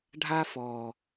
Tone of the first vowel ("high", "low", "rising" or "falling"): high